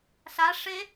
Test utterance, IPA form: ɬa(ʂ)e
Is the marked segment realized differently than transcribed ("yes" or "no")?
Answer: no